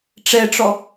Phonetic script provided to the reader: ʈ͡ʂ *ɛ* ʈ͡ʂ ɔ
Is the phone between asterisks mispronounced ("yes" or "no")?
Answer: no